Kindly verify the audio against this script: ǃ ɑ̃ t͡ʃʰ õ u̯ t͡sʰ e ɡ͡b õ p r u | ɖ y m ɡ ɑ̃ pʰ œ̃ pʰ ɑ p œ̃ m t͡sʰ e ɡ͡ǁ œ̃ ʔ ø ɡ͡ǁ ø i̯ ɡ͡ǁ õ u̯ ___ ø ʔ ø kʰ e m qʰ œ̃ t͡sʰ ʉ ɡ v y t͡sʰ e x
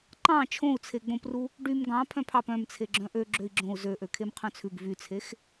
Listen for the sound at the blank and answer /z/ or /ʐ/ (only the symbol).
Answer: z